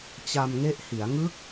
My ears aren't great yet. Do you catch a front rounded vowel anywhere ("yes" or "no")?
no